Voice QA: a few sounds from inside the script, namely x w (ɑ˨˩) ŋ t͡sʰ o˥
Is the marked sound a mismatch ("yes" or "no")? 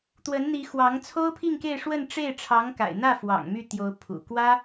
yes